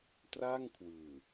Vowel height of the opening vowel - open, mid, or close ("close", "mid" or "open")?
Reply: open